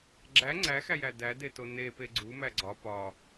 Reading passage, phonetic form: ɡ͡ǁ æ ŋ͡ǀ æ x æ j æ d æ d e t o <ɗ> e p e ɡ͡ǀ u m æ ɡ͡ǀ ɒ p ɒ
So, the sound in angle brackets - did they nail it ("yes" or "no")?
no